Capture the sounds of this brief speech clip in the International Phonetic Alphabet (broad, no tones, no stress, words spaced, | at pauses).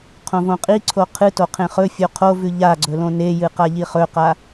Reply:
qʰõvõqʼiǀʰo qʰɨto qʰẽχɵfʲo qʰovʉ ʎaɡ͡ǀɵ lõnejɨ qaʎiχɵqa